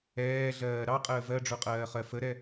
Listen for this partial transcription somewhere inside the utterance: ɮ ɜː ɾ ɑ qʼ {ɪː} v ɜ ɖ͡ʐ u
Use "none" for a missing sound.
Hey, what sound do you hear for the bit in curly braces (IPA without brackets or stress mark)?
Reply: əː